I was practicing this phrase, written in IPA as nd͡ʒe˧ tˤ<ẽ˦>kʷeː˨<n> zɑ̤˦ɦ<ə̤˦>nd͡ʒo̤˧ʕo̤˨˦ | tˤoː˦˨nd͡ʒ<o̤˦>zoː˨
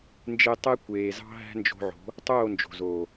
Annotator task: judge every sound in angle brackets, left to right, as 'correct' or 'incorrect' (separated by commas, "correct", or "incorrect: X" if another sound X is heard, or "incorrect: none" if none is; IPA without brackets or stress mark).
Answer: incorrect: e˦, incorrect: none, incorrect: æ̤˦, incorrect: o̤˨